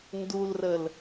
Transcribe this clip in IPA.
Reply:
n d u l r ə l

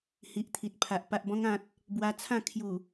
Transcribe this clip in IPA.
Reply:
h i˨ ʔ t̪ʰ i˨ t̚ pʰ a˨ ʔ p a˨ ʔ b ɔ̃˧ ŋ ã˨ t̚ | b w a˧ t͡sʰ ã˥˧ kʰ j u˨˩

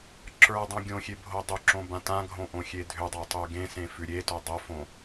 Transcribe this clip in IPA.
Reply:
ǁ ə˞ dˤ õ ɡʲ õ xʲ e bʱ o dˤ ʏ ǁ õ b ã t ã ɡʱ õ ʔ õ xʲ e dʱ ʏ dˤ o tˤ ʉ ɡ ẽ s ẽ f ʉ ɾʲ e t o dˤ o f õ

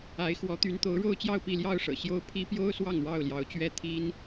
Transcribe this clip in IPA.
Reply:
a˨˦ ɪ̯ x w ɔ˨˦ t̪ y˨˦ n t̪ o˨˦ ʊ̯ ɻ o˥˨ ʊ̯ t͡ɕ j ɑ˥˨ ʊ̯ p i˥˨ l j ɑ˥˨ ʊ̯ ʂ ɤ̰˨˩ ɕ j o˦ ʊ̯ pʰ i˦ p j o˦ ʊ̯ s w ɑ˥˨ ŋ ɻ ɑ˥˨ ʊ̯ l j ɑ˨˦ ʊ̯ t͡ɕ ɥ ɛ˦ t̪ʰ i˦ n

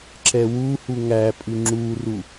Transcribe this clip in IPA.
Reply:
ǁ ɛ w u h u ŋ æ pʼ ʉ ŋ͡ǁ u r u

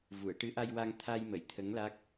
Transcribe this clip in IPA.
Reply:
v u˨˩˨ ə̯ ʈ ɨ˧˥ ʔ a˧ j w a˧ ŋ t̪ʰ a˧ j m ə˨˩˨ j t̪ʰ ə˧˥ ŋ l a˦˥ k̚

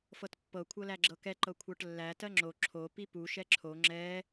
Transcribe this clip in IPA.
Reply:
f ɤ t pː ɤ kʷʰ ɤ l æ ɡ͡ǁ ɤ k ɛ ǃ ɤ kʷʰ ɤ ʈ lː æ t ɜ ŋ͡ǁ o ǁʰ o p i p u ʃ ɛ ǁʰ o ŋ͡ǁ ɛ

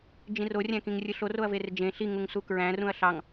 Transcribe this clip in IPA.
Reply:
d͡ʒ ĩ r o rʲ æ̃ k ĩ ŋ rʲ ɯ ɬ o r o ɐ̯ v e r d͡ʒ ẽ ɬ i ŋ u ŋ s u k ɹ æ̃ r ũ ɐ̯ ɬ ɑ ŋ

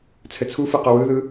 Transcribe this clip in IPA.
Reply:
t͡sʰ ɘ t͡sʰ u f ɯ q o w ɯ ð ɯ

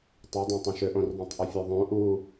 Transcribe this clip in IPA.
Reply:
tˤ ø dˤ œ̃ tˤ õ ʃ ø ʔ õ r ðˤ œ̃ tˤ ʔ ʏ fʲ ø ðˤ õ ʔ u

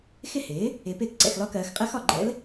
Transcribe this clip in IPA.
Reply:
x ɪ˥˩ h ɪː˩˥ | ɪː˩˥ p ɪː˥˩ k ǀ ɛ̰˧˩ x l ɒ˧˥ k ɜː˩˧ x qʼ ɜ˧˥ x ɒ˧˩ ɡ͡ǃ ɛ̰˧˥ l

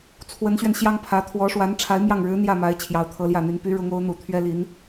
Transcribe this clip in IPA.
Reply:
t͡sʰ w ə˧˥ n ɕ ɥ ɛ˧ n ɕ j ɑ˥ ŋ pʰ ä˧˥ t̪ʰ w ɔ˧˥ ʂ w a˧˥ n ʈ͡ʂʰ a˧˥ ɪ̯ m j ɑ˥˩ ŋ ɻ ɻ̩˧˥ n̪ j ä˥˩ m a˧˥ ɪ̯ t͡ɕʰ j ɑ˧˥ ʊ̯ t̪ʰ ɤ˧˥ l j ä˥˩ n̪ y˧˥ n p y˧˥ ɻ ʊ˧˥ ŋ o˧˥ ʊ̯ n̪ u˨˩ t̪ʰ ɥ ɛ˥ l i˧˥ n

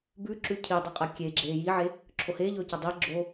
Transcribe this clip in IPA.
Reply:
b ʉ ǁ ʉ cʰ i dˤ ɨ qʼ ɐ kʲ e ɡ͡ǁ eː j i ʕ e | ǁʰ o h eː ʎ ɵː c ɐ dˤ i ɡ͡ǁ o

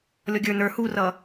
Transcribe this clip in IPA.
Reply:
lʲ ɔ ɡʲ ə˞ n ə˞ h u r ʌ

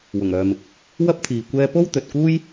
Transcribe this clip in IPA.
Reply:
w ʊ˨˩ ŋ œː˨ m ɪ˨ k̚ | w ɐ˥ p̚ t̪ʰ iː˨ kʷ ɛː˧ p o˥ w t̪ ɵ˨ t̚ k uː˥ j

